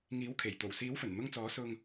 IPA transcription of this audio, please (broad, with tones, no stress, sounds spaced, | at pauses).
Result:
ŋ iː˨˥ w kʰ e˨˩ j t̪ o˨˩ w s iː˨˥ w f ɵ˨˩ n n̪ ʊ˧ ŋ t͡s ɔː˨˥ s ʊ˧ ŋ